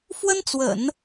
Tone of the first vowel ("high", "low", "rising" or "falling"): high